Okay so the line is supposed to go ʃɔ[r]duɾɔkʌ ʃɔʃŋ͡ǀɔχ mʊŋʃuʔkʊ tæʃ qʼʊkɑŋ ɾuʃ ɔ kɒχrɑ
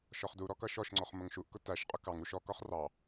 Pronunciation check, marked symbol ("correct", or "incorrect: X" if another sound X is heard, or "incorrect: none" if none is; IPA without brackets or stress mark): incorrect: χ